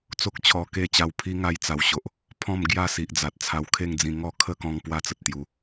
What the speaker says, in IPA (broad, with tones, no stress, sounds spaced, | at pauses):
t͡s o˦ k̚ t͡ɕʰ ɔ˧ k e˥˧ t͡ɕ a˧ w pʰ i˦ ŋ a˧ j t͡s a˨˩ w ɕ o˨ ʔ | pʰ ɔ̃˥˧ m ɡ j a˥˧ s i˨ ʔ d͡z a˨ t̚ t͡sʰ a˧ w kʰ e˥˧ ŋ d͡z ĩ˧ ŋ ɔ˥˧ kʰ ə˥˧ k ɔ̃˧ ŋ p w a˥˧ t͡s ə˨ t̚ t̪ j u˧